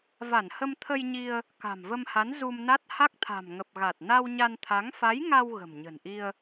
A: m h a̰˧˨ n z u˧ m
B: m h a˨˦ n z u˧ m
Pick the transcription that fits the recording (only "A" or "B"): B